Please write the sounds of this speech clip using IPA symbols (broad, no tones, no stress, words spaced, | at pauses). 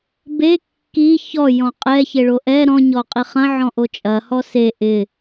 be kːi çɔ jɔ̃qʼɛçe ɭoʔɛ ɾɔ̃ɲɔ qʼiχɐ̃ ʕɔ̃ʔot͡ʃʼɐ hɔse ʔɪ